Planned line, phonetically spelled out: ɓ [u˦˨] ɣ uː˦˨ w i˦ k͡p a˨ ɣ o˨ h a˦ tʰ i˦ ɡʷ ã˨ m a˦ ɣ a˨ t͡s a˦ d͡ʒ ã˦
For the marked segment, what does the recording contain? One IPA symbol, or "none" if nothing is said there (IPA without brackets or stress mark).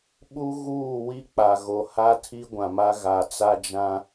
u˦